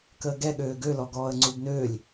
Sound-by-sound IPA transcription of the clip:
k əː ɡ ɛ ɠ øː ɡ ø l ɔ ɡ ɔː ə̯ ŋ͡ǀ u b n øː lʲ

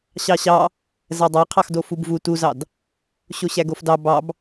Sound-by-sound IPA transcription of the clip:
ɕ ɑ ɕ ɑ | z æ dˤ æ qʰ ɑ x d o f u b v u t u z ɑ d | ɕ o ɕ æ ɡ o f d ɑ b ɑ b

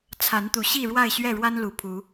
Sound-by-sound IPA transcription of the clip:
t͡sʰ a˨˦ n t̪ u˨˦ ɕ i˥˨ ɻ w a˥˨ ɪ̯ ɕ ɥ ɛ˥˨ ɻ w a˦ n l u˨˦ pʰ u˨˦

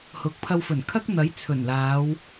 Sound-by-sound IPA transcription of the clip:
h ʊ˨ k̚ pʰ ɐ˧ w f ɵ˨˩ n kʰ ɐ˥ k̚ n̪ ɐ˨˥ j t͡sʰ ɵ˨˩ n l aː˨˧ w

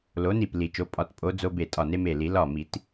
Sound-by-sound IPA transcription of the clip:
l o˨˦ n i˧˩ p l i˨˩˦ t͡ʃ o˩˧˩ pʼ ɒ˨˩˦ t pʼ o˨˦ d͡z o˦ b e˧˩ tʼ ɒ˧˩ n e˦ m e˧˩ l i˨˩˦ l ɒ˧˩ m i˨˩˦ t

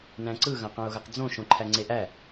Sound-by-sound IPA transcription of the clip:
n æ̃ ǀ ɯ ɣ ɐ̃ q ɐ̃ ʊ̯ ɣ ə q d͡z õ ʃ õ ǃʰ æ ŋ͡ǀ e ʔ æ

